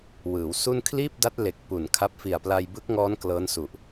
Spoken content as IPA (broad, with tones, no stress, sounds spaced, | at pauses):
w ɯː˩˦ w s u˥˩ n kʰ l iː˥˩ p̚ d a˦˥ t̚ l e˨˩ k̚ p u˨˩ n kʰ a˦˥ p̚ f i˨˩ a̯ p l a˧ j b ɯ˦˥ k̚ ŋ ɔː˦˥ n k l ɤː˦˥ n s u˨˩ ʔ